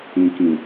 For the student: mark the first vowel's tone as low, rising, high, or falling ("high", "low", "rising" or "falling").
low